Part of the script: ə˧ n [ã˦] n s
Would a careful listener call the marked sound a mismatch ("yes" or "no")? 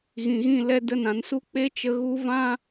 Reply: yes